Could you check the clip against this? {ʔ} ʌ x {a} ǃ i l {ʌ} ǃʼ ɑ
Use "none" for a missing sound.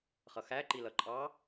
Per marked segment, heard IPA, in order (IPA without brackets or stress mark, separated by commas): χ, æ, ʌ